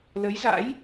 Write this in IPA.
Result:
l ə˨˦ j z a̰˧˥ j

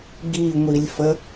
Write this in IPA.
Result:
ɡ i ŋʷ i lʲ f ə

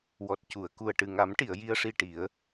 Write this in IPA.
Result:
w ɔ˨˩ t̚ c u˨˩˨ ə̯ k u˨˩ ə̯ ʈ ɨ˨˩ ŋ a˨˩˦ m ʈ i˨˩˨ ə̯ j i˧ ə̯ ʂ i˧ ʈ i˨˩˦ ə̯

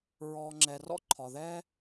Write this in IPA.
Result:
ɹ ɔ˩ ŋ͡ǁ ɛ˩ r ɔ̰˥ ǃʰ ɒ˩ ð ɛ˥

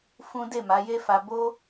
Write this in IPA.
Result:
f ũ˦ d e˦˨ m a˨˦ j e˦ f a˧ b o˦

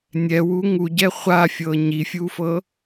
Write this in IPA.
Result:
nʲ ɛ w u ŋ u ɟ ɛ χʷ a fʲ ɤ ɲ i fʲ u f ɤ

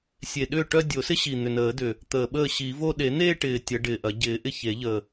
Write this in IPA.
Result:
sʲ e˨˩ ɗ ʏː˥˩ ʈ œ˥˧ dʲ o˨˩˦ s ɪ˥ ɕ i˨˩ n̪ ʏ˨˩ n əː˨˩˦ d ʏ˨˩ | t̪ əː˨˩ ɓ əː˥˩ ɕ i˨˩˦ v o˥˧ ɗ e˨˩˦ n̪ eː˥˧ ʈ ɪː˨˩ tʲ ɐ˨˩˦ ɖ ɪː˨˩ ʔ ɐ˨˩˦ ɟ ɪː˨˩˦ ʔ ɪ˥˩ ç e˨˩˦ ʎ ə˨˩

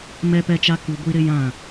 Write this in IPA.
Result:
m ɛ˦ p ɛ˦ t͡ʃ a˦ k u˦ ɡʷ i˦ ɾ ɪ˦ j ã˦˨

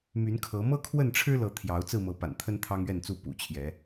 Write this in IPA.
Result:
m y˨˦ n kʰ ɤ˨˦ m ɤ˦ kʰ w ə˥˨ n ʈ͡ʂʰ ɻ̩˦ l ɤ˨˦ t̪ʰ j ɑ˨˦ ʊ̯ t͡s ɹ̩˥˨ m ɤ˨˦ p a̰˨˩ n t̪ʰ ə˦ n t̪ʰ ɑ˦ ŋ ɥ ɛ˥˨ n t͡s u˥˨ p ṵ˨˩ t͡ɕʰ j ɛ˨˦

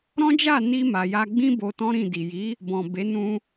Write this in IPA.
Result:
ɾ ɔ̃˦ d͡ʒ a˦˨ n i˧ m a˨ j a˧ ɡ͡b ĩ˦ b o˧ t ɔ̃˦ ɾ ĩ˦˨ d i˨ j i˨˦ | b ɔ̃˨ b e˨˦ n ũ˧

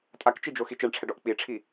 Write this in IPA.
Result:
tʼ a k t͡ʃ i d͡ʒ o x i t͡ʃ ɛ ɳ ʈ͡ʂʰ ɛ ɖ ɔ ʔ k͡p i ʈ͡ʂʰ i

